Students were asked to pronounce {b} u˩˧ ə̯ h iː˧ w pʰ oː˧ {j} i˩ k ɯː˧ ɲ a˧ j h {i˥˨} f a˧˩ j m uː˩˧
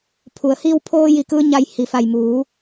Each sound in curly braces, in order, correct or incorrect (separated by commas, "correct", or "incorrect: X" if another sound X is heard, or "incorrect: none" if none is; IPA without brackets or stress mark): incorrect: pʰ, correct, incorrect: i˩